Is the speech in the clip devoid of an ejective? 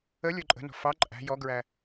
no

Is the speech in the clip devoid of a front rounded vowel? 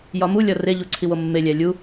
yes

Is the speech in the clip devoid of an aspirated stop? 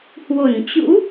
yes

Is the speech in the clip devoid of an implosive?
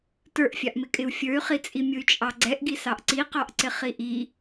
yes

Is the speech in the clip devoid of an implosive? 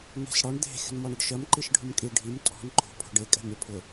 yes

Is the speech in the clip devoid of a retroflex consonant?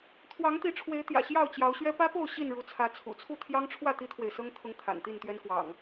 no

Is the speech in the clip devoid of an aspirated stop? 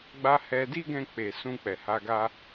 yes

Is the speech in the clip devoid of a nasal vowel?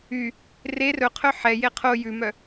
yes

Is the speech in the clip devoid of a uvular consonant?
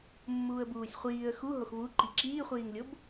no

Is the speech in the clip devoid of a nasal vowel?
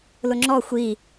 yes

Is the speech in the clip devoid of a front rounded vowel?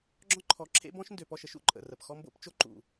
no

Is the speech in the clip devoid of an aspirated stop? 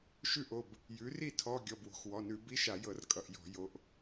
no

